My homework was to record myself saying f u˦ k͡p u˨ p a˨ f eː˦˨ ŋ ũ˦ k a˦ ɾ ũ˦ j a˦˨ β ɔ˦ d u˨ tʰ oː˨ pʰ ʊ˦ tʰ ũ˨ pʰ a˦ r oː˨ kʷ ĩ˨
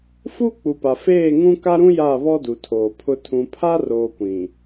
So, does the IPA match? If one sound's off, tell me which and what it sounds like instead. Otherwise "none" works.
none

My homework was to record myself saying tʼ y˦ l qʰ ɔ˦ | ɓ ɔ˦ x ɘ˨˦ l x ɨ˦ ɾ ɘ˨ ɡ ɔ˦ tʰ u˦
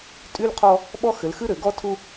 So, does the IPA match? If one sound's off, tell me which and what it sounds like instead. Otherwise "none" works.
none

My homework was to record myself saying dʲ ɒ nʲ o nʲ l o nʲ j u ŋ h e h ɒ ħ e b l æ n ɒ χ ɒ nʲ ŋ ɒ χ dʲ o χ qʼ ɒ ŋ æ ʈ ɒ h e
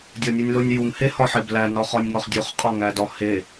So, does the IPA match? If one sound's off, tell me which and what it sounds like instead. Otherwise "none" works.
ʈ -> d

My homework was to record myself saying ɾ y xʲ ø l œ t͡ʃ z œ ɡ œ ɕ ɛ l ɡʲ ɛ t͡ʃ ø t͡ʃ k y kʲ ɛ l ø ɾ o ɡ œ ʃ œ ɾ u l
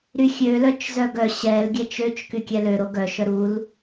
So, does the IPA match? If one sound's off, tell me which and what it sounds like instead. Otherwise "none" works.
none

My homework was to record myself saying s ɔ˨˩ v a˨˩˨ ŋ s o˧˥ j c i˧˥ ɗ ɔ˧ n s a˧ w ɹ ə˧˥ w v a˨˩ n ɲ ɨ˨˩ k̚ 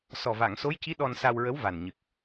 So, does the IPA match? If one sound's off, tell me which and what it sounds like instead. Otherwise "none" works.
none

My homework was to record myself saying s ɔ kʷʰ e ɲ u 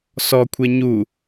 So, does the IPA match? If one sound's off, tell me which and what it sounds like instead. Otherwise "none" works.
none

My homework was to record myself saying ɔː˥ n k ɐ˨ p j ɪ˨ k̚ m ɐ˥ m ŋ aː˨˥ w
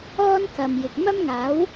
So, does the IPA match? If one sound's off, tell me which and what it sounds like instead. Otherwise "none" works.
p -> m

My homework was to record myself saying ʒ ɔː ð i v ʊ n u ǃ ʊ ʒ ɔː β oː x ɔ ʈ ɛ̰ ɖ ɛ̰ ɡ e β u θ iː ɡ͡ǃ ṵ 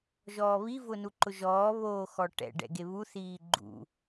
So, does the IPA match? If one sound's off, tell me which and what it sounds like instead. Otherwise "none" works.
ð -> β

